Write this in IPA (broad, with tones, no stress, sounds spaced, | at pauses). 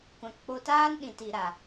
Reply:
kʷ ã˨ k k͡p o˧ t aː˦ n ɗ ĩ˨ t i˨ ɾ a˨